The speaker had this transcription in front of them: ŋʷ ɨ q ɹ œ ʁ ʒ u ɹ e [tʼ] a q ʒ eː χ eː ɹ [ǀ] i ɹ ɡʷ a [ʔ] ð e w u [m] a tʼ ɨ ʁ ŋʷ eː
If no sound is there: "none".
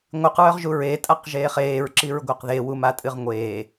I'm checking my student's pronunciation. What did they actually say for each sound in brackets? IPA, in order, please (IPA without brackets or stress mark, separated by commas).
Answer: tʼ, ǁ, q, m